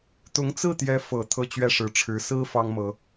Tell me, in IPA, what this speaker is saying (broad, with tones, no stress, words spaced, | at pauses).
t̪ʊ˧˥ŋt͡sɹ̩˥˩t̪jɛ˧˥ fɤ˨˩ t̪ʰɤ˥˧t͡ɕɥɛ˥˩ʂɻ̩˧˥ʈ͡ʂʰɻ̩˧˥ sɹ̩˥ fɑ˥ŋmɤ˧˥